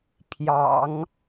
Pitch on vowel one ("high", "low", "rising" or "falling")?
low